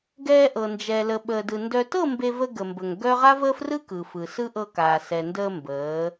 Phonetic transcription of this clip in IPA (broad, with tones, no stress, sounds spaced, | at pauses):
ɡ ɛː˧ ʔ ɤ˨ n d͡ʒ ɛ˨ l ə˨ ɓ əː˨ d ɯ˨ n d œ˨ t ɤ˦˨ m b e˧ v ə˧ ɡ ə˨ m b ə˨ ŋ ɡ œ˦ ʁ a˦ v əː˦ f r ɯ˦ k ɯ˨ f ɯ˨ s ɯ˦ ʔ ɤ˧ k aː˨ s ɛ˨ n d əː˧ m b əː˨˦